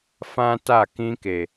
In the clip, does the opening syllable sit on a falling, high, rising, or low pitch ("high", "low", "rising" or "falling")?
high